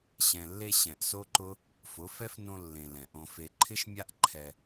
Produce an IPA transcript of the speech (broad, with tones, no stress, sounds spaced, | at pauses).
ɕ ɛ̃˨ lː e˧ ɕ ɛ̃˨ ʔ s o˦ ǃ ʊ˦ | f ʊ˨˦ f ɛ˦ f n õ˧ lː ẽ˨ l ɛ̃˨ ʔ õ˧ f e˦ ǃʰ ɪ˦ ʃ mʲ a˦ ʔ ǃʰ ɛ˧